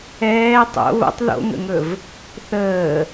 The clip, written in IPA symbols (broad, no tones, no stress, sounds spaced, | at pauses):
ɛː tˤ o̰ β o̰ tˤ ð o̰ ŋ ə̰ ŋ ɵ v | θ əː